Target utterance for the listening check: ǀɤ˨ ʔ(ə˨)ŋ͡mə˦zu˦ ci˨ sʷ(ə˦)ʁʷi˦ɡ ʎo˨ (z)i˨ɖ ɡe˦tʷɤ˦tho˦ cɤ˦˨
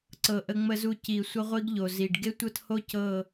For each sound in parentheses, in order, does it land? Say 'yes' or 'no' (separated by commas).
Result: no, yes, yes